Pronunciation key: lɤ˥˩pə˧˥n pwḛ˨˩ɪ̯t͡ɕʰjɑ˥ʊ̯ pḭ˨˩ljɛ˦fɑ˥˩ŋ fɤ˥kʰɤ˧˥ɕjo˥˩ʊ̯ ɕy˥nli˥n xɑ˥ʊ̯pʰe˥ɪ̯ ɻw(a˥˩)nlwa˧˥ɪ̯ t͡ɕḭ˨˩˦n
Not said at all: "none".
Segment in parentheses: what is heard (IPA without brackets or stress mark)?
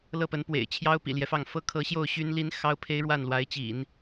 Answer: a˥˩